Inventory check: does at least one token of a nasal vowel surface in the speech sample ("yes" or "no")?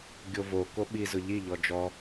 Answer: no